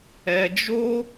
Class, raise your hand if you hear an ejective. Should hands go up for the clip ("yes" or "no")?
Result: no